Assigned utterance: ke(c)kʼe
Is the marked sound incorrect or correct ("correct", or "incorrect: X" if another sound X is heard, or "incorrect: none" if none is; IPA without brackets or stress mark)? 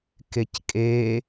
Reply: correct